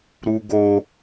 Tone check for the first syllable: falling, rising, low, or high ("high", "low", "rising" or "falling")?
high